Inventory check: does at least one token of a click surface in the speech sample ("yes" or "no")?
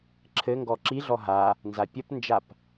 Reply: yes